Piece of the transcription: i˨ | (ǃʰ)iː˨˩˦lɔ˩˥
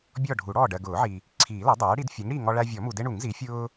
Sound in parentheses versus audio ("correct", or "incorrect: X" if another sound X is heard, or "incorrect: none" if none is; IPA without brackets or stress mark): incorrect: ǀʰ